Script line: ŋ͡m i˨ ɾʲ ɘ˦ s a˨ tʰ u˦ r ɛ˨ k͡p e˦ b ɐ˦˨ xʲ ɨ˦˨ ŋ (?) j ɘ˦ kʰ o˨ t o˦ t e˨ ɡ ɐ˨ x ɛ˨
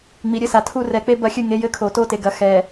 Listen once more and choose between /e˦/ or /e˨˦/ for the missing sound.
e˨˦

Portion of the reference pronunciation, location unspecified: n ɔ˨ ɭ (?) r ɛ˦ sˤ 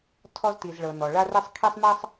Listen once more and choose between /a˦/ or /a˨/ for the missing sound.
a˦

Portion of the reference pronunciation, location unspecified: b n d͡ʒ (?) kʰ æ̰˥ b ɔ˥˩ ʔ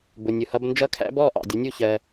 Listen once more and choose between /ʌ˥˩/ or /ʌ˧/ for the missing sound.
ʌ˥˩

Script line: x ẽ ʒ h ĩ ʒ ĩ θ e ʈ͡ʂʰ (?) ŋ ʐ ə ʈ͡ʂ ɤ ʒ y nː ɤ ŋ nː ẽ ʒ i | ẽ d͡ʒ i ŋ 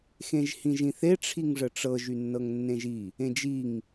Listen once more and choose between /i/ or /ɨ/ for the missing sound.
i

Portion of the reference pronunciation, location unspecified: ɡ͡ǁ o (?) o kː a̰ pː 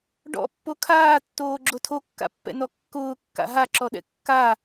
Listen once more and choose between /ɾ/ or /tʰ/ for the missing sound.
tʰ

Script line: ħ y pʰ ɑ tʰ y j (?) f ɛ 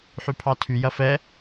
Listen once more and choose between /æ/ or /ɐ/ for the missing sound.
ɐ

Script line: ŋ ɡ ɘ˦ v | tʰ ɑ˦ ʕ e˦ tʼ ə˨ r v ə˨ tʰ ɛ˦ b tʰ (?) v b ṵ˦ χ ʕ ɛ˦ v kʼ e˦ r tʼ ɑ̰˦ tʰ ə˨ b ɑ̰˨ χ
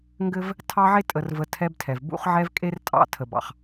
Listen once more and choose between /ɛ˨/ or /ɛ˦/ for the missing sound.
ɛ˨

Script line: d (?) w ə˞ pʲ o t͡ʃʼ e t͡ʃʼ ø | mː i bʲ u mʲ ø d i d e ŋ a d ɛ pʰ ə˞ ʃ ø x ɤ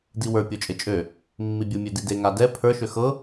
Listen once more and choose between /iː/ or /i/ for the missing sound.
i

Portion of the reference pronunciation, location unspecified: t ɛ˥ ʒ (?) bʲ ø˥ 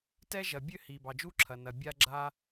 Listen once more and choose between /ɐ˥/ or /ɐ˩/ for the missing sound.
ɐ˩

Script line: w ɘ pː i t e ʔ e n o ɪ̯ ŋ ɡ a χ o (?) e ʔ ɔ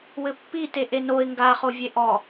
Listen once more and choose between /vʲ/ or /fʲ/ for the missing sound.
vʲ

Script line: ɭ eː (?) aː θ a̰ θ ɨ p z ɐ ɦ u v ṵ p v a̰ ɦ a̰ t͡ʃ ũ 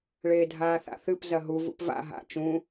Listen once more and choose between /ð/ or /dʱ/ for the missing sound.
dʱ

